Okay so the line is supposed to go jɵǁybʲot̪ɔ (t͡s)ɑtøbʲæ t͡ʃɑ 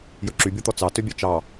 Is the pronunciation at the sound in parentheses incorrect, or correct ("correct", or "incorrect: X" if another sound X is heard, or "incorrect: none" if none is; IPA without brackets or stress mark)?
correct